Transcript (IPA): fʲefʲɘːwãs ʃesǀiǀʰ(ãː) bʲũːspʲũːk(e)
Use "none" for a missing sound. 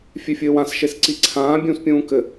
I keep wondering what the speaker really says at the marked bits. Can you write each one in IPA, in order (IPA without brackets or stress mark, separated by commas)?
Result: ãː, ɘ